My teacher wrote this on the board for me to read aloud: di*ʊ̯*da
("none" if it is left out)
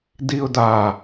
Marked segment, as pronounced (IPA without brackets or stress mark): ʊ̯